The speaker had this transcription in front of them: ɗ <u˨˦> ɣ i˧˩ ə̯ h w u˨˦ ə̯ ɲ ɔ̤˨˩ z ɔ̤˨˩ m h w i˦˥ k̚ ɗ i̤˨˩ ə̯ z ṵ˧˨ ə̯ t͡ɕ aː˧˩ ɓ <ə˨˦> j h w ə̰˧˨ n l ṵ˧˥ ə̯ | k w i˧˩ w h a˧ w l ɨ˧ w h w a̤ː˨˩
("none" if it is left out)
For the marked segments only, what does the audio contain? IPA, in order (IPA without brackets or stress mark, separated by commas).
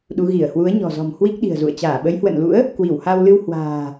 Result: u˨˦, ə˨˦